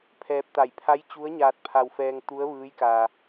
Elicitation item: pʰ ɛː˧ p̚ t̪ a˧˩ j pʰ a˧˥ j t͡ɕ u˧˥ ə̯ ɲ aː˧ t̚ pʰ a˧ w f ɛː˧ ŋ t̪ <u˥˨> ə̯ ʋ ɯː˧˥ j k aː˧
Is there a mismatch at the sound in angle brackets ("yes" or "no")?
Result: yes